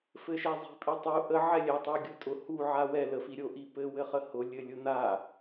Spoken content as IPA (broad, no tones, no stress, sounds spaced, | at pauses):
f ɘ ʃ ɛ zˤ i̤ pʼ i tˤ u ʔ ə ʕ ɛ lʲ ɛ tˤ u ɡʲ ʊ tʼ ʊ h u ʕ a w ɛ l ə f i ɾʲ o ʔ i p ɘ w ɘ χ ə h ʊ lʲ ɘ lʲ ʊ n̪ a